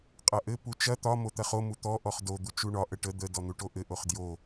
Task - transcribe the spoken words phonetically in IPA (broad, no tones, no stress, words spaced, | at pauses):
qʼɐʔɘ put͡ʃɐ t̪ɒ mot̪ɐχo mut̪ɔ ʔɔχdo d̪ut͡ʃuɳɒ ʔəʈə d̪ə dɔn̪uʈoʔɘ ʔoχdjo